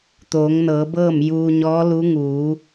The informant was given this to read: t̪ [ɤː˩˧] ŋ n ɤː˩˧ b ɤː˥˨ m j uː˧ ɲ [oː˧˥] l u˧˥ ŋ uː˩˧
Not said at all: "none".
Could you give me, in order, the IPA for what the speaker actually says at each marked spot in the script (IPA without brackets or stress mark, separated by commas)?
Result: oː˩˧, ɔː˧˥